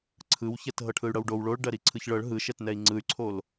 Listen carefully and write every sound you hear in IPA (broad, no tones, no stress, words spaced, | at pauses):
ǀʰɯwçɛt ɦɤʈʰɯy̯ɽɤwɖow ɭoɭ ɖɜɾiǀʰɯçɭɤɭ ɦɯʃɛtnɛi̯ ŋ͡ǀɯy̯ǀʰol